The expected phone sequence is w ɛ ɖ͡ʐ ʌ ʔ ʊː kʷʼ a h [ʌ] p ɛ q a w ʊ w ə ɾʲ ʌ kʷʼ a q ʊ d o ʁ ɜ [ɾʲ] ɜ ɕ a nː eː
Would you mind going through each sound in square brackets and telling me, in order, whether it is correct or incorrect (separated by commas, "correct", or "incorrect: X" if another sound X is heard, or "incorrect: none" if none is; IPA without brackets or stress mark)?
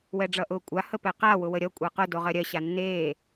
incorrect: ə, correct